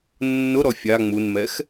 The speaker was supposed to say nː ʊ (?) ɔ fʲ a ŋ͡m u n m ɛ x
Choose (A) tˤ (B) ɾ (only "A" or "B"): B